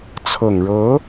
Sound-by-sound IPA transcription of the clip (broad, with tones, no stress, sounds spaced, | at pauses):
t͡sʰ ɤ˨˩ ŋ ɻ ɤ˧˥